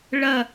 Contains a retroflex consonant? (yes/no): yes